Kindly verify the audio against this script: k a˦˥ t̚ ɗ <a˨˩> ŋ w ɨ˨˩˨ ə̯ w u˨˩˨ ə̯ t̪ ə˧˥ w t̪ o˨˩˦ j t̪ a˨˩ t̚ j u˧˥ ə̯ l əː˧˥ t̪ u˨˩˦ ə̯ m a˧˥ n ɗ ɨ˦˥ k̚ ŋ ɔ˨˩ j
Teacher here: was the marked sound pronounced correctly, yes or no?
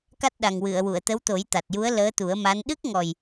yes